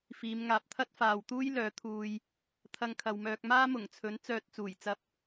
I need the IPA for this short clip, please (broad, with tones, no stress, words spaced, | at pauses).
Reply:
fiː˨˧mŋaː˨p̚ t̪ʰɐ˥t̚faː˨wt̪uː˥j lœː˨˥t̪ʰuː˧j | t̪ʰɐ˧ŋkʰɐ˨wmœː˧k̚maː˥ mʊ˨˩ŋt͡sʰɵ˨˥n t͡sœː˧t̚ t͡suː˨˩jt͡sɐ˧p̚